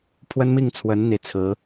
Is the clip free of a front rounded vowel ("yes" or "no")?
yes